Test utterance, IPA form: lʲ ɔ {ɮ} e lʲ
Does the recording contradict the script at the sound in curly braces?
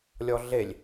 no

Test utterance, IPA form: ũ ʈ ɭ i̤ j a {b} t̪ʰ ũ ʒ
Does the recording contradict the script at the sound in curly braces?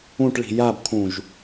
no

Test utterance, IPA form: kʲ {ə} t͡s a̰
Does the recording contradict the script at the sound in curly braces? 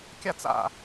yes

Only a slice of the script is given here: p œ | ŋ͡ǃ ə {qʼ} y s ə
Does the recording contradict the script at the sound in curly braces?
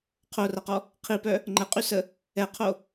no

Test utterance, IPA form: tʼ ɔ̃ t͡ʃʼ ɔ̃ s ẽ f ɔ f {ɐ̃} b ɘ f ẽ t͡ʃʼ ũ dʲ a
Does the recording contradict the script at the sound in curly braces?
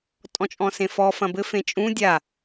no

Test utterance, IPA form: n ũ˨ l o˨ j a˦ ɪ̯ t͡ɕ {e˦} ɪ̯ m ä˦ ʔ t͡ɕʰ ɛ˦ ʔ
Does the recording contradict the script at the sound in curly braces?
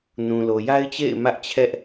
yes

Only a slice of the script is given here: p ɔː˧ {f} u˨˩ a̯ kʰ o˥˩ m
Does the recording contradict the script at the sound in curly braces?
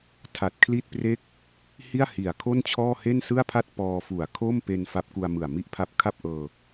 no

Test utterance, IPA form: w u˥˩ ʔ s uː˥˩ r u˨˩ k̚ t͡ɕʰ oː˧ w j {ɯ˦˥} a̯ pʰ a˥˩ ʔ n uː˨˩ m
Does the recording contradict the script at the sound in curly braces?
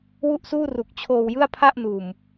yes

